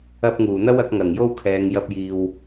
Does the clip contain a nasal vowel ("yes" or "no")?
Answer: no